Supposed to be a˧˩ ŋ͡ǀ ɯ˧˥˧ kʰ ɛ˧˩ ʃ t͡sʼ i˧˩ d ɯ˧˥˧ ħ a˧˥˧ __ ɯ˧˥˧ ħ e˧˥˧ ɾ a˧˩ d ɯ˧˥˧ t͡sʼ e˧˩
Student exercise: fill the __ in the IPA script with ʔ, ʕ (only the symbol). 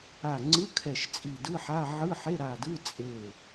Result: ʕ